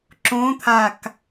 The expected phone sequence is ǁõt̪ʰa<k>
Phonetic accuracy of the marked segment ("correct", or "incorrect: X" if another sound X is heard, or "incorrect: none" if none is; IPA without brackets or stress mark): correct